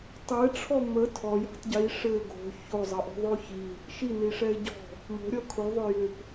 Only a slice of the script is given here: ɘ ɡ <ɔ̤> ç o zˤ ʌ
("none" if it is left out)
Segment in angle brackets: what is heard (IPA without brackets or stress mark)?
o̤